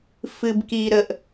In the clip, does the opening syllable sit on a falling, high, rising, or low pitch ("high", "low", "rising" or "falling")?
low